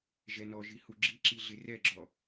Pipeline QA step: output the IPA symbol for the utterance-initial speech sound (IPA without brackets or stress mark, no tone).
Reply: ʒ